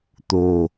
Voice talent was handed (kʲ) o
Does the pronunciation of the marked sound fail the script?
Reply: yes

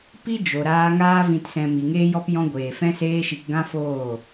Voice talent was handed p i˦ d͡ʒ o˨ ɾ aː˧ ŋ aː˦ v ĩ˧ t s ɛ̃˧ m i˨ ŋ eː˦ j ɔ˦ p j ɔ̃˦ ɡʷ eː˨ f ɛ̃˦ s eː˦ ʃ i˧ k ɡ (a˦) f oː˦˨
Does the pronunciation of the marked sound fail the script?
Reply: yes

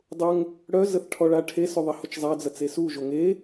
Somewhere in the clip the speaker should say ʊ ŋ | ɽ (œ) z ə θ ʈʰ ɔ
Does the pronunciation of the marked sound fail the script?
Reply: no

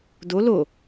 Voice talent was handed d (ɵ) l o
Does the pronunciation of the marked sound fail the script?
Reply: yes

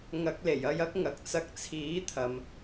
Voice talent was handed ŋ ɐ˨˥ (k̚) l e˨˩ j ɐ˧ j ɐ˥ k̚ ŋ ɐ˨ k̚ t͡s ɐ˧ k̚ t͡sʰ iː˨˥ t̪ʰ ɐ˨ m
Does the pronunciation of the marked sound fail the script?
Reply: no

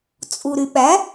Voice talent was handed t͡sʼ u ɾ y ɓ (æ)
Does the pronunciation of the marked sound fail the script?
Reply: no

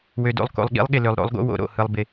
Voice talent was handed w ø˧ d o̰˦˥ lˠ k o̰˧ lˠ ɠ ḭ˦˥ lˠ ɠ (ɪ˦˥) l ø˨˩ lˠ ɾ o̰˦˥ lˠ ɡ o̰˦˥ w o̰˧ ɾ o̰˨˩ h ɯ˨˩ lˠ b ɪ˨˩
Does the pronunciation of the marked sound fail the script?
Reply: yes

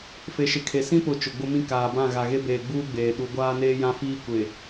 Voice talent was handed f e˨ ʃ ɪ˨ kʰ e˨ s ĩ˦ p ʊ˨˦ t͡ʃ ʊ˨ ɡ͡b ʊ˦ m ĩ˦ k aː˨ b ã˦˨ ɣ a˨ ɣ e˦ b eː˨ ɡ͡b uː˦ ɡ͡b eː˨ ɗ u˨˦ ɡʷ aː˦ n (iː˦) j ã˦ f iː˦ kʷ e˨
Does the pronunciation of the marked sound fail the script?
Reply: yes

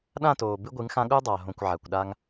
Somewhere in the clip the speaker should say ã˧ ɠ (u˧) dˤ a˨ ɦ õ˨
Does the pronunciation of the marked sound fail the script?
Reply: no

